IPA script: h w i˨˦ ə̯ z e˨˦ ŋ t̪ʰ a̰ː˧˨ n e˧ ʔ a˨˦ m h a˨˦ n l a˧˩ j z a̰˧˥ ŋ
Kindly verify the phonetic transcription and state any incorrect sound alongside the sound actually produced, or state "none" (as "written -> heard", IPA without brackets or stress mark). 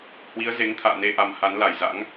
none